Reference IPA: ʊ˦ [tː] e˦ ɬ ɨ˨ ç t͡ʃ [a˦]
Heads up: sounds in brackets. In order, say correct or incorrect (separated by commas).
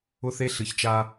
incorrect, correct